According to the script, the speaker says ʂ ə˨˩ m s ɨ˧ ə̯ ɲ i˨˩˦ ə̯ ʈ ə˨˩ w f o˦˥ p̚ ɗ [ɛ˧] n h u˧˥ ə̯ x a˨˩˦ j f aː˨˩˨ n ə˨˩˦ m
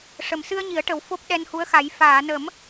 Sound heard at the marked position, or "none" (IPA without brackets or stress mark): ɛ˧